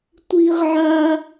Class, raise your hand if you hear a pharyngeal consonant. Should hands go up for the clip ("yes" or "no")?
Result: yes